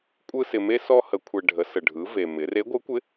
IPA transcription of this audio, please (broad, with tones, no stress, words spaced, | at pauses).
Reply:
kʷʼɯ˥sɪ˧me˥ sɔ˥hə˧˥kʷʰɛ˧ ɖʱə˩˧sə˩ɖʱɯ˩˧ve˩ mɪ˩˧re˧˥ɡʷɯ˧˥kʷɪ˧˥